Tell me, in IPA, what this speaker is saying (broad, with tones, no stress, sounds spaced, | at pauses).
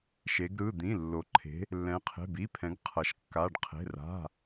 ʃ e˩˧ ɡ ɾ ɯ˩˧˩ d̪ ĩ˩˧˩ lː o˩˧ ǃʰ e̤˩˧ | lː ɛ̃˩˧ qʰ e̤˩˧˩ b i˩˧˩ pʰ ɛ̃˩˧ ɡ qʰ ʌ˩˧ ʃ kː a˩˧˩ ɖ qʰ e̤˩˧˩ r a̤˩˧˩